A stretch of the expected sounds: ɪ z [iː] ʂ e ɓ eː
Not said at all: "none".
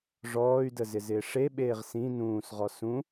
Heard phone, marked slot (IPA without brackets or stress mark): ɪː